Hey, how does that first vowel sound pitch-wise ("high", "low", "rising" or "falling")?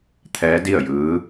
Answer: rising